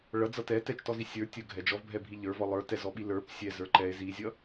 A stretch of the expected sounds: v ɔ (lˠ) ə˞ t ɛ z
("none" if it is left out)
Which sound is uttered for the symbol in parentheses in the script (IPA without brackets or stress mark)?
lˠ